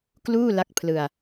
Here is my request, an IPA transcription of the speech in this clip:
kluː˥˩la˦˥k̚pʰlɯ˧a̯

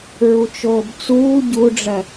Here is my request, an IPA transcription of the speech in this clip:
ɹut͡ʃoːbt͡suː ɟuɖ͡ʐɜ

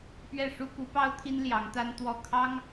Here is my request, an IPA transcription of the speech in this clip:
pɥɛ˥˩ʂu˥ ku˧˥ pɑ˥ʊ̯t̪ʰi˥n ljɑ˧˥ŋt̪a˥n t̪wɔ˥˩ kʰɑ˥ŋ

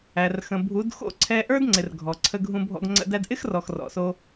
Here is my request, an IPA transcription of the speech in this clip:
æ˨rxə̃˨ bʱu˨˦dxo̰˦˨ ǀʰɛ˧ʔə˞˦dŋ͡ǀɪ˨r ɡʱɔ˨ǀʰə˧ ɡʱũ˧bʱɔ̰˧ɡŋ͡ǀə̰˧ dæ˧dʔɪ˦xrɔ˨x rɔ̰˨so˧

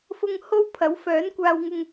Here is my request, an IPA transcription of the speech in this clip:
fʊ˧ŋ ho˥w pʰɐ˨˥wfœː˨˥nkʷaː˧wŋʊ˧ŋ

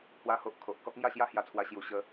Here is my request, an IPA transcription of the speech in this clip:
hwa˦ho˦ʔ kʰo˨ʔ kɔ˦k̚ŋja˥˧ɕja˦ hja˧t͡sʰwa˧ ɕju˨˩ɕə˨˦

